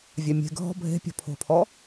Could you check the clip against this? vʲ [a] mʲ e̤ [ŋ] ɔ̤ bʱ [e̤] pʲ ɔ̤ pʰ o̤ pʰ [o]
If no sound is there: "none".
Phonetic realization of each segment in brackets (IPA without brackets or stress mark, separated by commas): a, ɡʱ, e̤, ɔ